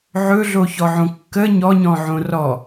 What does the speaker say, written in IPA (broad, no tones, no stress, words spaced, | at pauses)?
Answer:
ʕɵɮoçɔʕõ kːə ɲɔɲɔ̃ʕõ rɔ